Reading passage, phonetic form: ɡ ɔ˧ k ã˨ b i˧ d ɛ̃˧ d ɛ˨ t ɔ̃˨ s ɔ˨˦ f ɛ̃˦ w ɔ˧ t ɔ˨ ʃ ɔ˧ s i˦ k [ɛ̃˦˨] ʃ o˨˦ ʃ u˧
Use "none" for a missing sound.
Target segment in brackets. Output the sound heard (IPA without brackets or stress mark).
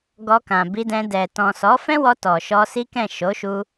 ɛ̃˦˨